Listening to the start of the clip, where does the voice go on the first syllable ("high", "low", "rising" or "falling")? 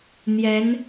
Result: rising